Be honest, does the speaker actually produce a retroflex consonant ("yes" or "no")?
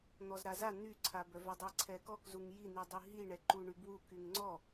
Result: yes